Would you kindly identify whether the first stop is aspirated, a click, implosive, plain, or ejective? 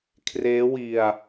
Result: aspirated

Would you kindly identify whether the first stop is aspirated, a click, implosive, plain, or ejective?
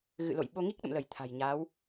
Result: implosive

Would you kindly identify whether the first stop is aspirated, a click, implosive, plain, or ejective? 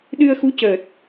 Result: implosive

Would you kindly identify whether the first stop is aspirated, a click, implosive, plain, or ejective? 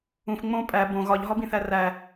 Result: ejective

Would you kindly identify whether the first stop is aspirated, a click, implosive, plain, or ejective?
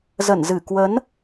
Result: plain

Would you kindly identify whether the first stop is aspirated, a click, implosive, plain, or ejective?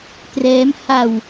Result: plain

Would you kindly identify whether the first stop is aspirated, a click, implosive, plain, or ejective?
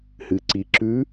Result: click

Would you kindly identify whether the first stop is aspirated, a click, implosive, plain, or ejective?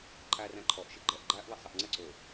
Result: click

